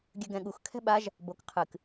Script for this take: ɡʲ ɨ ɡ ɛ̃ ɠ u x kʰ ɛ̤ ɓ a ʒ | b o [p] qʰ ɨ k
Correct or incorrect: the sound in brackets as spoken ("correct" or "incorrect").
incorrect